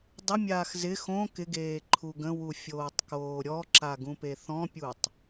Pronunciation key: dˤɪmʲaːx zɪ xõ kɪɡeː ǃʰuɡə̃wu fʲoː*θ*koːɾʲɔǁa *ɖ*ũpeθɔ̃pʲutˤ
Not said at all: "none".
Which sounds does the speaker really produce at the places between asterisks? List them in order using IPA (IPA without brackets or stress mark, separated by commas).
tˤ, ɡ